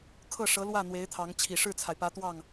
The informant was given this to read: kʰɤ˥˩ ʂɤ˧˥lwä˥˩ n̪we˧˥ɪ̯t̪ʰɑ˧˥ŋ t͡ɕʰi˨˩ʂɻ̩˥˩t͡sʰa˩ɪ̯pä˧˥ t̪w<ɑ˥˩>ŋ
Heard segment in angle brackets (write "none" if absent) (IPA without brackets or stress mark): ɑ˥˩